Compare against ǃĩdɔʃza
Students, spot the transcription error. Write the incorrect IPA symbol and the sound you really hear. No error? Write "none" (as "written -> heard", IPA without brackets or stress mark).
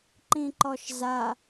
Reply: d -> ǃ